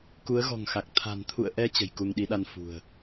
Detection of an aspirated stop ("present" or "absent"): present